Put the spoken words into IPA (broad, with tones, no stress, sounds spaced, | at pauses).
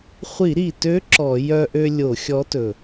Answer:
χʷ i˧˩˧ ɾ i˨˩ t ø˨˥ ǁ ɔ˧˩˧ j œ˧ ʔ ø˧ lʲ o˧˩˧ xʲ ɔ˨˥ t ɵ˨˩